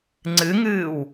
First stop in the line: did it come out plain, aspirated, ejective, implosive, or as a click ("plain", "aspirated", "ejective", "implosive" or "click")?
click